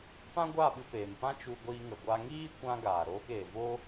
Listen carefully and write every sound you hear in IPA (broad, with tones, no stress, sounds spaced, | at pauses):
p ã˦ ɡʷ aː˦˨ ɓ ɨ˧ p eː˨ m p ã˦ t͡ʃ u˧ ɡʷ iː˧ ŋ ə˨ ɡʷ a˦ ŋ iː˦ kʷ ã˧ ɡ aː˨ ɾ oː˧ k eː˨ v o˦